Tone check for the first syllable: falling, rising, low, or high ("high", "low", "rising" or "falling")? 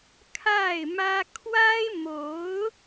falling